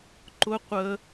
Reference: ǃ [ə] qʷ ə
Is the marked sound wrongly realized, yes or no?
yes